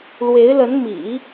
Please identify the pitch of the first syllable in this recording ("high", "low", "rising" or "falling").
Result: rising